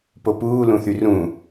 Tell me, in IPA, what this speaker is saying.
p o p uː l ũ θ y r ũː

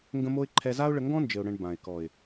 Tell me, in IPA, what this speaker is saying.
ŋ ɡ ə̃˧ m o˧ ɪ̯ ǃʰ ɛ˧ z a˦ ʊ̯ ɭ ə˧ ŋ ɡ ɔ̃˦ n d͡ʒ ɘ˨ ʊ̯ ɽ ə̃˨ ɳ b ã˨ ɪ̯ k ɔ˨ ɪ̯

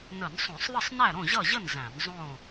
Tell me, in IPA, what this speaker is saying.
n ə˧˩˧ n sˤ õ˧˩˧ sˤ ðˤ ə˥˨ sˤ n æ˥˨ ɾ õ˥˨ ʑ ʌ˥˨ ʑ ə˥˨ n z æ̃˧˩˧ n zˤ õ˥˨

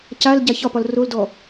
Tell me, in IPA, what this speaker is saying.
c a l ɟ a ç ɒ p ɒ l r o l d ɔ

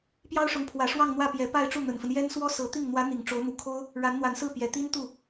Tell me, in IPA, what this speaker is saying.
p j ɑ˥ ʊ̯ ʂ ʊ˧˥ ŋ pʰ w ä˨˩ ʂ w ɑ˥˧ ŋ n̪ w ä˥˩ p j ɛ˧˥ p a˥˧ ɪ̯ ʈ͡ʂ u˥˩ n̪ ə˨˩ n f ə˦ n j ɛ˥ n s w ɔ˥ s ɤ˧˥ t̪ i˥˩ ŋ n̪ w ä˧˥ n̪ i˨˩ ŋ ʈ͡ʂ o˧˥ ʊ̯ n̪ u˨˩ kʰ o˥ ʊ̯ | ɻ a˧˥ n n̪ w a˧˥ n s ɹ̩˥˩ p j ɛ˨˩ t̪ i˥ n t̪ u˥˩

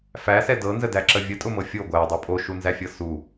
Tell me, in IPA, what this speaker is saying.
f æ s ɛ d ɤ n z ə d æ ǁ ə vʲ ə tʼ ʊ m ɤ fʲ o ɡʷ æ dˤ u pʼ o ʃ u n z æ fʲ ɤ s u

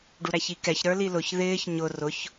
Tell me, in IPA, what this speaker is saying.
ɖ u ɾ æ ç i k ɛ ç ɾ ə˞ l i l ʊ ç ð ɪː ç ɲ ʊ r ʊ ç

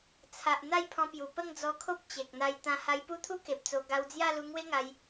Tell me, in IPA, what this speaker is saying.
t͡sʰ a˨ ʔ n̪ a˥˧ j pʰ ɔ̃˧ p j u˨˩ p ə˥˧ ŋ d͡z ɔ˧ kʰ o˦ p̚ t͡ɕ e˨ k̚ n̪ a˧ j t̪ ã˧ h a˧ j p u˦ t̪ʰ u˦ k e˨ p̚ t͡s o˧ ɡ a˧ w d͡z j a˥˧ l u˧ ŋ w e˦ ŋ a˧ j

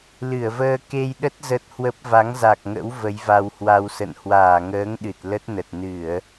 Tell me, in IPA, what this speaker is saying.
l ɨ˧˩ ə̯ v əː˧ k e˧ j ɗ ə˦˥ t̚ z ə˦˥ t̚ h w ə˦˥ p̚ v a˨˦ ŋ z a˨˩ k̚ ŋ ə̰˧˥ w v ə˨˦ j v a˧ w h w a˧ w s ə̰˧˨ n h w aː˧˩ ŋ əː˨˦ ŋ ɗ ɨ˨˩ t̚ l ə˦˥ t̚ n ə˨˩ t̚ n ɨ˧˩˨ ə̯

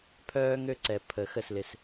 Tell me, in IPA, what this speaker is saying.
pʰ œː˧ ŋ ø˧ ǀ ɛ˨ pʰ əː˨ x ə˦˨ s l ɪ˧ s

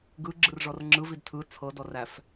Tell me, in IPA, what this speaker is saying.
ɡ ɯ ɡ͡ǁ ɯ r ʐ ɔ r ŋ͡ǁ ɯ v i d tʰ ɯ t͡sʰ ɤ d ɔ r æ f

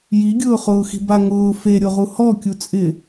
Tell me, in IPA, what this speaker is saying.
j i ɡʲ ʊː χ ʊː x i̤ b a ŋ ʊː f e ɾʲ o ʁ u h ɔ kʲ u t͡sʼ ɪ

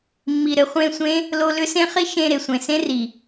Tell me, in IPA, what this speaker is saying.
mː i˨ ɾ ɘ˨ χʷ ẽ˦˨ sʷ ẽ˦ | l o˧ l ʏ˦ s ẽ˦ χ i˦ ʃ ẽ˧ ɾ e˨ sʷ ẽ˨ s ẽ˦ r i˨

